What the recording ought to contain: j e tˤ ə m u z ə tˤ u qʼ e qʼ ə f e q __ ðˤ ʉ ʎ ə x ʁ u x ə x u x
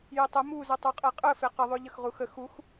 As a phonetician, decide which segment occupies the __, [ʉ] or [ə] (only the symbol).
ə